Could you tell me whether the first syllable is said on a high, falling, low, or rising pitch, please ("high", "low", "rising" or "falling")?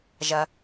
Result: low